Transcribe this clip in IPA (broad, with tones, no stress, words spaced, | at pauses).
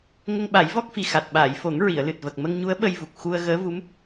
ŋə˧ŋɓa˨˩˦jvɔ˦˥k̚fi˨˩ xa˨˩t̚ɓaː˨˩˨jfo˨˩˦ŋ ɹi˨˩˨ə̯lɨ˨˩t̚və˨˩k̚ mə˧ŋɲu˧˥ə̯ ɓə˧jvu˨˩k̚ xu˧ə̯ ɣəː˧˥vu˧˥m